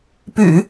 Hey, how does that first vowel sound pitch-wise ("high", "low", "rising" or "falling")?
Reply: low